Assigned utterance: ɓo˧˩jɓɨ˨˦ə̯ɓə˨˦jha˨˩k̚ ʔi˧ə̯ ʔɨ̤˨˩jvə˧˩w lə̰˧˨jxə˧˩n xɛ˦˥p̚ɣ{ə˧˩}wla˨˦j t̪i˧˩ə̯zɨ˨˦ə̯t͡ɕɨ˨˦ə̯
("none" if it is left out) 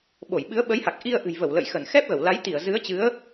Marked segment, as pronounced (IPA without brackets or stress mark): ə˧˩